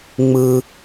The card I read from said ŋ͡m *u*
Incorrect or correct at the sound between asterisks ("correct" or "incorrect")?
incorrect